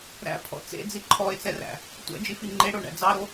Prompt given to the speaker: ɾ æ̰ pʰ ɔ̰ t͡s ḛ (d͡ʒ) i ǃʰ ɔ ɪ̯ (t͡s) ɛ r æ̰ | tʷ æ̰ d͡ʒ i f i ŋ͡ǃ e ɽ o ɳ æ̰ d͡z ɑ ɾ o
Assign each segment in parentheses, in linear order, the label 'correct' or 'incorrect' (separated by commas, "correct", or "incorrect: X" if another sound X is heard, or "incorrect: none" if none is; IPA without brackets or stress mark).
incorrect: d͡z, correct